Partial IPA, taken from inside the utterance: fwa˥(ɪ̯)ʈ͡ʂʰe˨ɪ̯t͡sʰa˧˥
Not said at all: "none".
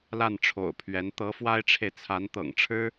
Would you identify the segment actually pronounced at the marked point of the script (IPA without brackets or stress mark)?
ɪ̯